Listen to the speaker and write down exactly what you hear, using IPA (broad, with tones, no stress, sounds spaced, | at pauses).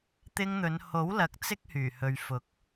t̪ ɪ˧ ŋ n̪ ɵ˨˧ n h o˨˥ w l ɐ˨ k̚ t͡s ɪ˥ k̚ h yː˨˩ h ɵ˨ ɥ f ʊ˨˥ k̚